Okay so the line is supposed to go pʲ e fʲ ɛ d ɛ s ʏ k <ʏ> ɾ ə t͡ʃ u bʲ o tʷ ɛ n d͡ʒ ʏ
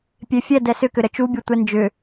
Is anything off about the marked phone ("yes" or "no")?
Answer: no